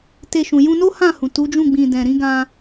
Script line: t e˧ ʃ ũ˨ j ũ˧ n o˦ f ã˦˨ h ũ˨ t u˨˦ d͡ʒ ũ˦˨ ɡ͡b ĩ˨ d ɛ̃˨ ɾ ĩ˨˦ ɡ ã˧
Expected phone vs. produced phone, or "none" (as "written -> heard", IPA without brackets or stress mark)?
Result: f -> h